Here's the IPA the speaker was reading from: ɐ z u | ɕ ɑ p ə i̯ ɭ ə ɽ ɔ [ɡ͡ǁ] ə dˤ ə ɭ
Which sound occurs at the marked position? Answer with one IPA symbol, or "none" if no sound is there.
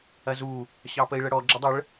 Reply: ɡ͡ǁ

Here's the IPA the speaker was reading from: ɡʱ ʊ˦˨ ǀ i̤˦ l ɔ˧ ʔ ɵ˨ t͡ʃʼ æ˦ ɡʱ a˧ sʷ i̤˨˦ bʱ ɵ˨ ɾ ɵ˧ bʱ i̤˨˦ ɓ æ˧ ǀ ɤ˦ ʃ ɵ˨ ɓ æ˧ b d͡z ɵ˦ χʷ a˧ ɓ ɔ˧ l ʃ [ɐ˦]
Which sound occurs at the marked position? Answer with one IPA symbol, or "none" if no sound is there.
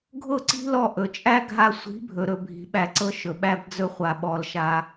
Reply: a˦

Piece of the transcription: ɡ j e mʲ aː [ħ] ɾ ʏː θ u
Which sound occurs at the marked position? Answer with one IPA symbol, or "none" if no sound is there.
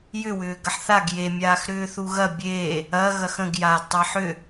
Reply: x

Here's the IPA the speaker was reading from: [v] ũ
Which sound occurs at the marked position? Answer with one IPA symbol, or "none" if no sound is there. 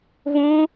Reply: v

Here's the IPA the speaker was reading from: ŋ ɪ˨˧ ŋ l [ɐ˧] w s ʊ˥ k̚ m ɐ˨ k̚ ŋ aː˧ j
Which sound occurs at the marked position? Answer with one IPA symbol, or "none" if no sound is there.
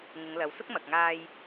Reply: ɐ˨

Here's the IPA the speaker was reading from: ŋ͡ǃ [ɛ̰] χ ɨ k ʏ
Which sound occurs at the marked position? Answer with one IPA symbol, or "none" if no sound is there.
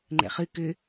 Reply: ɛ̰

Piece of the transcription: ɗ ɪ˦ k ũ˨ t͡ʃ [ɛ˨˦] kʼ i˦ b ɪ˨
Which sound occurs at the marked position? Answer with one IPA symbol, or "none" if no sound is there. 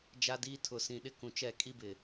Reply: ɛ˦˨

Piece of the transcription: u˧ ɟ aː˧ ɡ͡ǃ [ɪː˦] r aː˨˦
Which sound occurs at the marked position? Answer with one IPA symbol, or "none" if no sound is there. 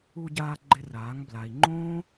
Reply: ɪ˦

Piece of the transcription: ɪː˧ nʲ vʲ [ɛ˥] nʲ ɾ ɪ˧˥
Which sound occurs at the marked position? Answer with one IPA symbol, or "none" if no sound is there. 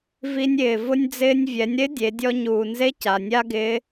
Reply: ɛ˩˧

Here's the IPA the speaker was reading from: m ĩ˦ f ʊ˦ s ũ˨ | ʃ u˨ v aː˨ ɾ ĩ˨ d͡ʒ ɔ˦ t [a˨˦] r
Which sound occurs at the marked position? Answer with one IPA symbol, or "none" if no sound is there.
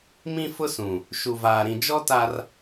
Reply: a˦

